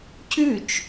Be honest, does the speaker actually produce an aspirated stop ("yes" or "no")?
no